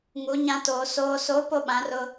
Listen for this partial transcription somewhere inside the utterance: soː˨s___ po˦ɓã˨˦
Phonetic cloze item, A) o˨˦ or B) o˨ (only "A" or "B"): A